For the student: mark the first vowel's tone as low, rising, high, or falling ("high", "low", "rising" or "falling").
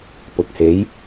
low